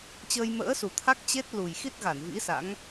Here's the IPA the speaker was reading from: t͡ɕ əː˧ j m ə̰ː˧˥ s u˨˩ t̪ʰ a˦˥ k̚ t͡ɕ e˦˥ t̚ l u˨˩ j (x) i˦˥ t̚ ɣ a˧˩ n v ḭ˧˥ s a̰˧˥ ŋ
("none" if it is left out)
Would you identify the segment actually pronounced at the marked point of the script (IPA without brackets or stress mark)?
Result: x